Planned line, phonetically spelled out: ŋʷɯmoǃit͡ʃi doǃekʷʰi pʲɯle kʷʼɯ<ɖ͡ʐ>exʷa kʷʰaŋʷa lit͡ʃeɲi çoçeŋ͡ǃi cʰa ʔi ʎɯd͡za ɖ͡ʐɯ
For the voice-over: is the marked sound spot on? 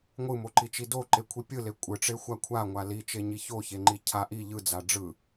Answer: no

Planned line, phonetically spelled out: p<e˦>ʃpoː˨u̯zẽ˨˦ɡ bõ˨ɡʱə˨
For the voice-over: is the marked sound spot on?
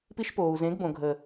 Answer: no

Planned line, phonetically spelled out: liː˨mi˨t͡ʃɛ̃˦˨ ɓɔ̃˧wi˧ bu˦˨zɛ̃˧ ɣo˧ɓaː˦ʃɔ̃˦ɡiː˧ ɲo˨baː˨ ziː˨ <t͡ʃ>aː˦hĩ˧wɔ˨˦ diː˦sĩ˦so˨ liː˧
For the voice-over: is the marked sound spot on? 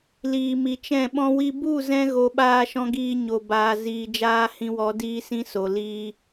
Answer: no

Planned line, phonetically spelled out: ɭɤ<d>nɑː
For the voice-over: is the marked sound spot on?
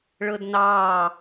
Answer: yes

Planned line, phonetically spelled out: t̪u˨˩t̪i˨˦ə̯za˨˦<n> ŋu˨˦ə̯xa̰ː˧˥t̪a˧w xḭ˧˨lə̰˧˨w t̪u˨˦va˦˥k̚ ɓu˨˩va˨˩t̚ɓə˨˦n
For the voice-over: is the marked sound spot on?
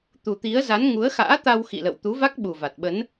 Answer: yes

